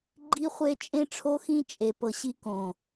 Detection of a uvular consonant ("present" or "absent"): present